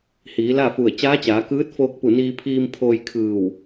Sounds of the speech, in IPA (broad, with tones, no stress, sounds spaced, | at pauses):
h iː˩˧ l a˥˨ f u˧˩ ə̯ t͡ɕ aː˧˥ t͡ɕ aː˩˧ k ɯː˧˥ t̚ f oː˧ k̚ p u˧˩ n iː˧ pʰ iː˧ m pʰ oː˧ j kʰ ɯː˧˩ w